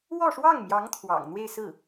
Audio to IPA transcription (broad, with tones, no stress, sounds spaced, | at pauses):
w ɔ˥˧ ʂ w ɑ˥˩ ŋ m j ɑ˧˥ ŋ t̪ʰ w ɑ̰˨˩ ŋ n̪ w e˥˧ ɪ̯ s ɹ̩˥˩